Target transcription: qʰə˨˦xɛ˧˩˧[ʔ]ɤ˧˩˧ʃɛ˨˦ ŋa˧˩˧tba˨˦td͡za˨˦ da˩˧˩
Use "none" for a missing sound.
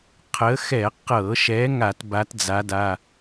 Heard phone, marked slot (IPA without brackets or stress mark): q